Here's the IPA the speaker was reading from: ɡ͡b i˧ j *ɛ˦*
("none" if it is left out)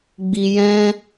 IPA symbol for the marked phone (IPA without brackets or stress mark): ɛ̃˦